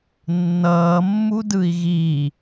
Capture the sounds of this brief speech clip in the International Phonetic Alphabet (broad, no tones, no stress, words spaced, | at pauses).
nːʌːmːudɯi̯ ɣi